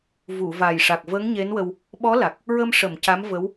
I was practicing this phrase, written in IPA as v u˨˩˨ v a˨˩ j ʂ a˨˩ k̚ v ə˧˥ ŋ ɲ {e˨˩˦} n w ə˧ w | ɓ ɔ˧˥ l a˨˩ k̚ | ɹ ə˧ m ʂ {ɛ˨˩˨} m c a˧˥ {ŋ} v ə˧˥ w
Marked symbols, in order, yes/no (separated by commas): no, no, no